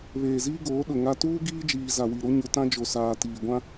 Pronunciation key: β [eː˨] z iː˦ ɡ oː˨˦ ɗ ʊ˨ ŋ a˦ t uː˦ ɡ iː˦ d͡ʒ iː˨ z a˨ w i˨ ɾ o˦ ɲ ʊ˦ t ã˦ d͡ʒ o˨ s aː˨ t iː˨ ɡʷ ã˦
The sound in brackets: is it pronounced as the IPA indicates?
yes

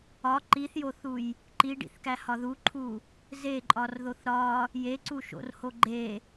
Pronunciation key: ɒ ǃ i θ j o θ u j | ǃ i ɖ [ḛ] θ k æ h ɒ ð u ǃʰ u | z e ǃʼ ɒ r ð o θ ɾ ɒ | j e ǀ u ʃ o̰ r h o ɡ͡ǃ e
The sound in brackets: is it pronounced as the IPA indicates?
no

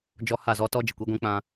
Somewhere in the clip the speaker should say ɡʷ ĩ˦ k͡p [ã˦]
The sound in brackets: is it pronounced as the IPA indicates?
yes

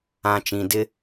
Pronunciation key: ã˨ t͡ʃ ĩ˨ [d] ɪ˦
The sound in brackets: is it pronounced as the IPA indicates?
yes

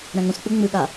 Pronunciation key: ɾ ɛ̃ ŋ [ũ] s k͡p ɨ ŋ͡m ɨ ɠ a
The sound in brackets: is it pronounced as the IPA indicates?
yes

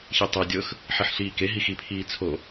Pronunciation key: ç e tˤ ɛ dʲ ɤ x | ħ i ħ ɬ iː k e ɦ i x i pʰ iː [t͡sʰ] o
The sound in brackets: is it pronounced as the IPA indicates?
yes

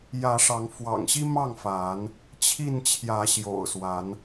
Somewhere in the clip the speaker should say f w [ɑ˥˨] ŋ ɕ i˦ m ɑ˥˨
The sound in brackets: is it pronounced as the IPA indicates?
no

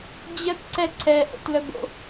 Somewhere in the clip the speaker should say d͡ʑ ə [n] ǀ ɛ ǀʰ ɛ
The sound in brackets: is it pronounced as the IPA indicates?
no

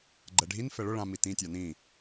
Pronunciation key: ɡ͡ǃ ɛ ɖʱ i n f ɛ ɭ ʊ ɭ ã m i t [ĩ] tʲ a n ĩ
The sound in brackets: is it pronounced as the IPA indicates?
yes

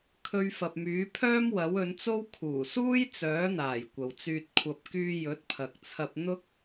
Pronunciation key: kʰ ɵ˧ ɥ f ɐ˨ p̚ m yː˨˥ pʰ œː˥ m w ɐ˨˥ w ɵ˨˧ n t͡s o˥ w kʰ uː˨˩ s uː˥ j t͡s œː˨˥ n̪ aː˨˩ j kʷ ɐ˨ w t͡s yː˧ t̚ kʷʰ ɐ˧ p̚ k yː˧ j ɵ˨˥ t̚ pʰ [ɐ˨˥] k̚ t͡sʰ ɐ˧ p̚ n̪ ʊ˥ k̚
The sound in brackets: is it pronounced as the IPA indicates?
no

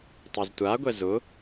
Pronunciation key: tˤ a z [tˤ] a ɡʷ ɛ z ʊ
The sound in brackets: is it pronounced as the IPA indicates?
no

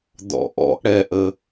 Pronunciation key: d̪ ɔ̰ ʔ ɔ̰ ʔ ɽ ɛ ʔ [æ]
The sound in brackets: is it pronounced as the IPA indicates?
no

